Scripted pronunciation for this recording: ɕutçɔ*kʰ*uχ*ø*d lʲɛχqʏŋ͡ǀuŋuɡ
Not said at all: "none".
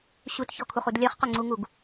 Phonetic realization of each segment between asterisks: kʰ, u

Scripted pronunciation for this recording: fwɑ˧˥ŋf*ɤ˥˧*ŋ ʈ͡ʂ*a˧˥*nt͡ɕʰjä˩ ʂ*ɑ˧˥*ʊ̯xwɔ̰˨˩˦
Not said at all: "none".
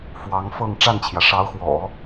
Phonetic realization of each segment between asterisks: ɤ˥˧, a˥˩, ɑ˧˥

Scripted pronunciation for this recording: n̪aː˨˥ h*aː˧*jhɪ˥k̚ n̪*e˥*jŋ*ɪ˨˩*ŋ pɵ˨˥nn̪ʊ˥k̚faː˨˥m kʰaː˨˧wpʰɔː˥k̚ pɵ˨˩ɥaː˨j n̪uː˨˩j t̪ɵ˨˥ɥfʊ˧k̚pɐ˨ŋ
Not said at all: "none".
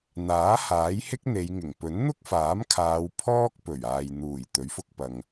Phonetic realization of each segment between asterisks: aː˨˥, e˨˧, ɪ˨˩

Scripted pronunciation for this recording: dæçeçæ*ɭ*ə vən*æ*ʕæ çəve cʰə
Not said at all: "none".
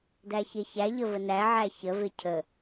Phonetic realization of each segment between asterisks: ʎ, æ

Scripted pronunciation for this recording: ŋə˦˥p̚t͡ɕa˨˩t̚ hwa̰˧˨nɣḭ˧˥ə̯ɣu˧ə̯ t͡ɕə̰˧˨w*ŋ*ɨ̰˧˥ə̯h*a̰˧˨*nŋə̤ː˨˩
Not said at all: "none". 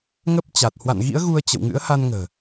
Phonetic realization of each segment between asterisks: ŋ, a˧

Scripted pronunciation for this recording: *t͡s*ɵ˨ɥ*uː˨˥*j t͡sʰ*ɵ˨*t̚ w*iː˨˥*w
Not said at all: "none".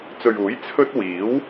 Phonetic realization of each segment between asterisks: t͡s, uː˨˥, ɵ˥, iː˨˥

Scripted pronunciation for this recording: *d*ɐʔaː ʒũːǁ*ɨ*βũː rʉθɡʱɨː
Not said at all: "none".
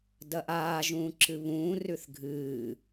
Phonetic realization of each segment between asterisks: d, ɨ

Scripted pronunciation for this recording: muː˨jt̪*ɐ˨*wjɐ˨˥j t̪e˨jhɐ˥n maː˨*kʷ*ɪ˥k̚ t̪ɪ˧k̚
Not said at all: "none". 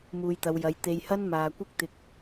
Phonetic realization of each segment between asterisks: ɐ˨˧, kʷ

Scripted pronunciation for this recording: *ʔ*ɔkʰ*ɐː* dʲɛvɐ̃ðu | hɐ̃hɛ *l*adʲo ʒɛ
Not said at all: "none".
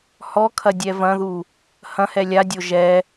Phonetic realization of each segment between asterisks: h, ɐ, lʲ

